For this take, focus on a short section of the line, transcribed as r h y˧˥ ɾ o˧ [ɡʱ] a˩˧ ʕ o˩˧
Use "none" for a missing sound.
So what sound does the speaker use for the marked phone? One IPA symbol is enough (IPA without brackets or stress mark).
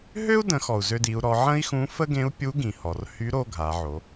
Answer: ɡʱ